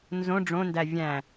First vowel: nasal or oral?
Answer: nasal